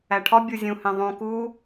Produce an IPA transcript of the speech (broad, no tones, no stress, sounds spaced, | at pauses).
æ ʈʰ ɒ bʲ u zʲ ũ h ẽ ðˤ ũ k u